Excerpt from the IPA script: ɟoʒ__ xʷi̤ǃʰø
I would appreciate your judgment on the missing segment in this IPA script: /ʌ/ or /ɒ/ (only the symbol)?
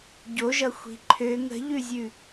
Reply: ʌ